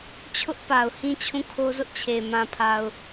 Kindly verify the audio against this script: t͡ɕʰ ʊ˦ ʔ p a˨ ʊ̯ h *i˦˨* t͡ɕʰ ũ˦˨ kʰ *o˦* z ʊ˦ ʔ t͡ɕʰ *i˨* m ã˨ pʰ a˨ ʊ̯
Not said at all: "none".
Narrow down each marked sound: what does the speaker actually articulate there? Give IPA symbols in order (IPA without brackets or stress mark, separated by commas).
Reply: ĩ˦˨, o˦, e˨